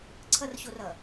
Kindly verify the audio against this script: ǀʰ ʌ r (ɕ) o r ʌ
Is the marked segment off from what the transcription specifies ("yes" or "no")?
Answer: no